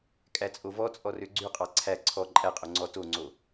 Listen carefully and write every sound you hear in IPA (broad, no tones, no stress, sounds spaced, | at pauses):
kʼ æ t͡sʼ o v ɔ t͡sʼ ɔ r ø ɡ͡ǀ ʉ qʼ ɑ ǀʰ æ ǀʰ ɔ ǃʼ æ qʼ o ŋ͡ǀ ɔ t o ŋ͡ǀ o